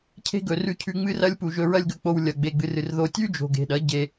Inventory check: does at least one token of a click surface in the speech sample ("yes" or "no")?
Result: no